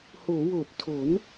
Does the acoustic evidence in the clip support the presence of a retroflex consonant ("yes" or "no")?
no